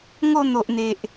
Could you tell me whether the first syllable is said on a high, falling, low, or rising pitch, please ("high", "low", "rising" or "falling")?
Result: falling